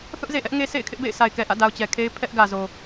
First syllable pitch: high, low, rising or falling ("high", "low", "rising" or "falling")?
high